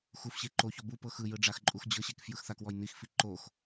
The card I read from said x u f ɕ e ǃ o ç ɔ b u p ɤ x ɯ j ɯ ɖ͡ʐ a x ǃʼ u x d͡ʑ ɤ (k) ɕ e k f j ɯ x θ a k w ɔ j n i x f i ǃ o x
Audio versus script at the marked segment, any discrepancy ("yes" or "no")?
yes